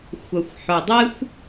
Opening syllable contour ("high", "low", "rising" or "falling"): low